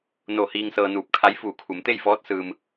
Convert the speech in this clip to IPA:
n o˧˩ h iː˧ ŋ s ɤː˧ n uː˧˩ p̚ kʰ a˧˥ j f uː˧˩ kʰ u˩˧ m t̪ e˥˨ j f ɔː˧˥ t̚ s ɯː˩ m

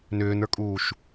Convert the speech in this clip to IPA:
n ʏː n ə˞ kʼ uː ʃ

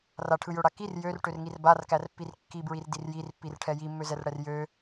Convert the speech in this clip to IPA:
r a ʈʰ ɯ j ø ɽ a k i r j ø r ʈ ø r ŋ i r b a r k æ r pː i r kː i b ɹ i r d i r j i r pː i r ʈʰ ɛ j i mː ø z ɛ r ɽ ɛ r j ø

